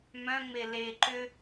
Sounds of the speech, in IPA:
mœ̃ŋ͡me le ǃʏ

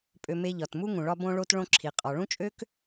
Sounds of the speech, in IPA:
pʼø˨ me˧ʎɒ˨tmu˦ŋũ˨ ɭɒ˧bõ˧ɭo˧t ɭõ˧ǁʰi˨qʼɒ˨ ɭũ˦t͡ʃʼø˦k

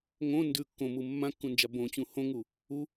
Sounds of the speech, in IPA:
ŋõ ndʉ kːõmu mːãkːũnd͡ʒa bõt͡ɕũ hõŋu | u

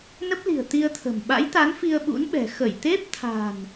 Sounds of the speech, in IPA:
nə˦˥p̚li̤˨˩ə̯ t̪i˧ə̯t̪ʰə̤˨˩m ɓa̰˧˥jt̪a˨˦n fi˧ə̯ɓṵ˧˥nɓɛ̤˨˩ xə˧˩j t̪e˦˥p̚t̪ʰa̤˨˩n

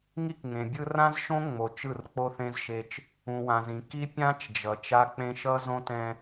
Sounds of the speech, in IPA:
ŋi˦kŋẽ˨bʲɯ˦ rã˦zʃõ˦ŋ͡mo˨ t͡ʃɯ˦˨rk͡po˦θẽ˦zʃe˦t͡ʃ | ũ˨wã˨zĩ˨ ki˦ pʲã˦t͡ʃd͡ʒʌ˨ t͡ʃa˦ k͡pẽ˦ ʃʌ˦zõ˦tɛ̃˦

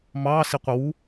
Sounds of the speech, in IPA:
mɑ siqʷəwu

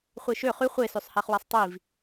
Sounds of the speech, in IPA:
χʷeʃø χy χʷesøsˤhæχwæsˤ tˤiv

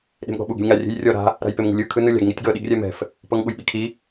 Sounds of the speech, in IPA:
ɗe̤mɠɔ̤ɓuɡ e̤lʲŋa rʲe̤jrʲɔ ɾa̤ | ɾa̤jpemŋṳlʲɯ kʰɯnɯlʲa̤ɡ ŋitʲɡɤ ɗiɡrʲɛmɛ̤f | pɤŋɠujɓikʰi

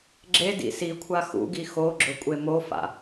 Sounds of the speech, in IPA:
ɡ͡ǁedḭ sikʷʰa xṵɡi xoɡ͡ǁɵ kʷʼemofa̰

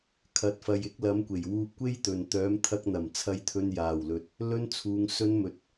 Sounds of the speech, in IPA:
kʰɐ˨t̚fɐ˨j ɪ˨˥k̚lɐ˨˧m kʷe˨˩j wuː˧p̚kʷe˥jt̪ɵ˨n t̪œː˨˧m t̪ʰɐ˧k̚n̪ɐ˨˩m t͡sʰɐ˧jt̪ʰɵ˧n jaː˨˩wlɵ˨t̚ | lɵ˧nt͡sʰuː˨ŋ sɵ˧nmɵ˨˥t̚

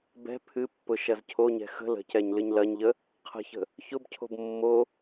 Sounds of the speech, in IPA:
bɛ̤ pʰɨpːʊ ʃɐzcʰoɲɛ̤ xə̤ lə̤cɛɲ lɨɲlɐɲʎə | qʰə̤çə̤ | çʊbcʰo̤b mːo

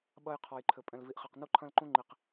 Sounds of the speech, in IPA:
ɓɐ˦jqʰɔ˨jǃʰɘ˨ pʼɛ̃˨lvi˨ʔχɛ˨q nu˦ǃʰɐ̃˦lǃũ˦ ŋ͡ǃi˨q

